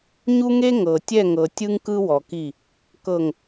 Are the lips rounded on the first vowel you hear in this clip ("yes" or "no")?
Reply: yes